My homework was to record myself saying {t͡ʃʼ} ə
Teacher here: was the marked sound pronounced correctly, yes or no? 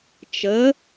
no